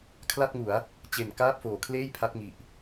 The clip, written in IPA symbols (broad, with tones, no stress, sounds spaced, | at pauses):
kʰ l a˥˩ t̚ ŋ u˩˦ a̯ | t͡ɕ e˨˩ n k aː˥˩ p̚ f oː˩˦ kʰ l eː˥˩ j pʰ a˦˥ t̚ ŋ i˨˩ ʔ